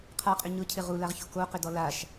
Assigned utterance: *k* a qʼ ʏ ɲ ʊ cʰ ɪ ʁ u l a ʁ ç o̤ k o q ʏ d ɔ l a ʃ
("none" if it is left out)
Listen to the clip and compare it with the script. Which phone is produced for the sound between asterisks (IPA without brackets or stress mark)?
qʰ